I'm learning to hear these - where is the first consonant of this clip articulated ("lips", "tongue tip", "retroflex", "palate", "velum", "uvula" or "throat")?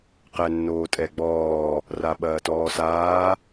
uvula